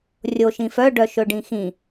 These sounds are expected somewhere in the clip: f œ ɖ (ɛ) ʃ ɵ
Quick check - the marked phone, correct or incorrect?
incorrect